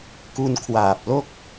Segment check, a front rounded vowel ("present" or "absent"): absent